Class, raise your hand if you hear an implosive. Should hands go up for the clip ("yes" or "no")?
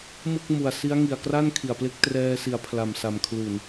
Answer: no